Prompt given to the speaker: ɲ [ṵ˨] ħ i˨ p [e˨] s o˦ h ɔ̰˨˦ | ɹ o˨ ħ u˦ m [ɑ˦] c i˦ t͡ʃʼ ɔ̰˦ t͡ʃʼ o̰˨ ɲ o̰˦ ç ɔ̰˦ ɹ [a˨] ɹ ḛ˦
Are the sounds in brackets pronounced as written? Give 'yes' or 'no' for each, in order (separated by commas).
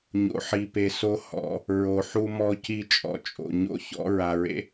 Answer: no, yes, no, yes